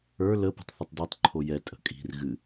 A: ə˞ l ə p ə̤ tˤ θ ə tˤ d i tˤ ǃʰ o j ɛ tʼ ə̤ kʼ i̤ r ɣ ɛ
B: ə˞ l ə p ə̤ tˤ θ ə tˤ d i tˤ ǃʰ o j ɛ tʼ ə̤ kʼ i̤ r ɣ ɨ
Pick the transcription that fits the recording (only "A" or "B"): B